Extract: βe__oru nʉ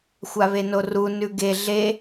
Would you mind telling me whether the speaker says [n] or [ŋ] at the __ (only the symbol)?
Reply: n